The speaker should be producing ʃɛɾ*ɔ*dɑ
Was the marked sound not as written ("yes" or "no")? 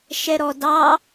no